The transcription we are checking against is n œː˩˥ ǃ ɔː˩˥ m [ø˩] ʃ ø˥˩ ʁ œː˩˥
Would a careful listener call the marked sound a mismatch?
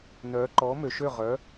no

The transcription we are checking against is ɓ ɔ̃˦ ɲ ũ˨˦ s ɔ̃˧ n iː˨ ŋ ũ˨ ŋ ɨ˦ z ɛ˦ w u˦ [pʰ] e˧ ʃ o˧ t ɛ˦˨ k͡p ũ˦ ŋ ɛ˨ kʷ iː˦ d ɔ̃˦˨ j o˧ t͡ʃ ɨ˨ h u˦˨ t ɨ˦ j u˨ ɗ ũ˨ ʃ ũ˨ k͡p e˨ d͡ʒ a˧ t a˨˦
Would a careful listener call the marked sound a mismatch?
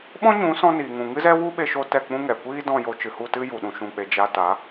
yes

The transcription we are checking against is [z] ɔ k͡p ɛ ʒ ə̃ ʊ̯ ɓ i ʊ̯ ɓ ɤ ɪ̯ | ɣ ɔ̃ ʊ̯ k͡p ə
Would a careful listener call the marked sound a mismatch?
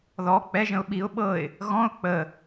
yes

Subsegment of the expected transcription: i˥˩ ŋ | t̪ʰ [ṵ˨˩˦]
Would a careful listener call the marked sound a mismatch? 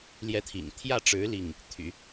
yes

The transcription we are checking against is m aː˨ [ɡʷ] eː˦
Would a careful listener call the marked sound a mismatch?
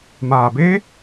yes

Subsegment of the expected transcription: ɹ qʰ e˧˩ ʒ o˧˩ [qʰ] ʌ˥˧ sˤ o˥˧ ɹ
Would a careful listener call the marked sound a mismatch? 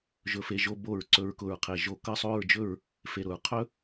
yes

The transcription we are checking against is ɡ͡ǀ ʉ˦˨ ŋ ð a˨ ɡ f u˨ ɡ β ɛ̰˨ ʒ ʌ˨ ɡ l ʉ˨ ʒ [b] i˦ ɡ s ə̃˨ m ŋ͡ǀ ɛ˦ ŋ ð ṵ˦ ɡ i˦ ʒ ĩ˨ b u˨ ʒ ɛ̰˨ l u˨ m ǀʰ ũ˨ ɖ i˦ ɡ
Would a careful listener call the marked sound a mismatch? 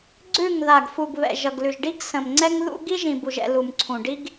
yes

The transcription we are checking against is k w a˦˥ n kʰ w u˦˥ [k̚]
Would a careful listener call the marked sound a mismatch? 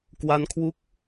no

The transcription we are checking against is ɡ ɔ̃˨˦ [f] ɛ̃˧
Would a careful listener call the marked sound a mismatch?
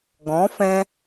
no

